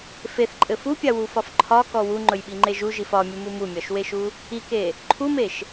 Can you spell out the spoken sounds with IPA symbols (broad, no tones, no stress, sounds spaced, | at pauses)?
f e θ ǃʼ ɘ f u pʲ a w u f ɒ f ǃʰ ɒ k ɔ w u ŋ͡ǃ ɵ j ɓ i ŋ͡ǃ e ʒ u ʒ i f ɒ mʲ u m u m u mʲ ɒ ʃ w e ʃ u | i k e | ǃʰ u m e ʃ